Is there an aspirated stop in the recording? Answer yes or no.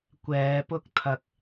yes